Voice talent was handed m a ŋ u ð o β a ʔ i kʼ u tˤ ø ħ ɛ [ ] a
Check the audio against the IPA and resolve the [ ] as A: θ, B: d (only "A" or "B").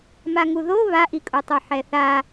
A